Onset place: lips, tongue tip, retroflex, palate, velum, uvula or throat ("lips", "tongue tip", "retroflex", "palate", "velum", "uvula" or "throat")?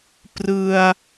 lips